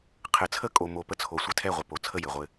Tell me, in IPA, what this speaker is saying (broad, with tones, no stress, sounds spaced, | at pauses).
qʰ ɘ˨˦ t͡sʰ ə˦ kʼ o˨ m o˨ p ə˦ t͡sʰ o˨ sʷ ɘ˦ tʰ ɛ˦˨ ʁʷ ə˨ p o˨ t͡sʰ ə˦˨ j ɘ˨ ʁʷ ɘ˦